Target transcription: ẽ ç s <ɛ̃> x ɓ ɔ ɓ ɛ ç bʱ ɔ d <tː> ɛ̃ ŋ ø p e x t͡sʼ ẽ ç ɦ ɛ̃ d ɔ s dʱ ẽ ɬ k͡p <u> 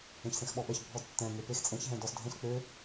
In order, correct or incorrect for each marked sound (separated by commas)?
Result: incorrect, correct, incorrect